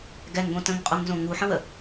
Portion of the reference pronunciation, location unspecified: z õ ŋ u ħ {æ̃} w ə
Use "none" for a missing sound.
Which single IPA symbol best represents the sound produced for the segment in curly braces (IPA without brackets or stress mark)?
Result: ə̃